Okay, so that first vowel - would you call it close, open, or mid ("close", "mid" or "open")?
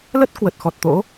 mid